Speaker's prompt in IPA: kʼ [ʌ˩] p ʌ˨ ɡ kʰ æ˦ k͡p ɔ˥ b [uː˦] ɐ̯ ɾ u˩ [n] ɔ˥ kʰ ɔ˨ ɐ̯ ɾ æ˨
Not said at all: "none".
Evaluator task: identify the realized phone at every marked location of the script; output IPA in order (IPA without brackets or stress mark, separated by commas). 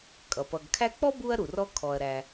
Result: ʌ˩, u˦, r